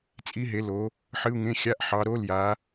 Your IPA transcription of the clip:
t͡sʼ i˦˥ ɦ e˨˦ l o˨˦ | ħ ɨ˧˥˧ u̯ ŋ ẽ˧˥˧ xʲ a˧˥˧ ʔ ħ ɑ˨˦ ɾ o˧˥˧ l j a˨˦

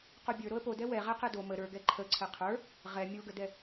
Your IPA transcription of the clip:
q o bʲ ə˞ ɾ o ə̯ p o d ɛ w ɛ ʁ ɛ q ɛ d o m ə ɾ ə˞ ɡ ɛ ǃʰ ə ǀʰ ɛ qʰ ə˞ | ʁ ɛ mʲ o ɡ ə d ɛ

